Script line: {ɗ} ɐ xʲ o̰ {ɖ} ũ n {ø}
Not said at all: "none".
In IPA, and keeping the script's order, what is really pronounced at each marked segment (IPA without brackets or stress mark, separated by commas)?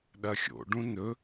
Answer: ɗ, ɖ, ɵ